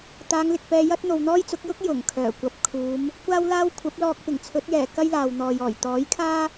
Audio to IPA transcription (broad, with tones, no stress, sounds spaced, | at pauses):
t̪ aː˨˧ ŋ l ɪ˨ k̚ p ɛː˧ j ɐ˥ t̚ n̪ o˨ w n̪ ɔː˥ j t͡s ʊ˨˥ k̚ j ʊ˥ k̚ j ʊ˨˩ ŋ kʰ œː˨˩ kʷ ɐ˨ p̚ kʰ uː˨˧ m | kʷ aː˥ w l aː˥ w kʷʰ ɐ˨˥ p̚ l ɔː˧ k̚ p ɪ˨˩ ŋ t͡sʰ ɵ˨˥ t̚ j ɛː˨˩ k ɐ˥ j l aː˨ w n̪ ɔː˨ j ɔː˨˩ j t̪ ɔː˨˥ j kʰ aː˥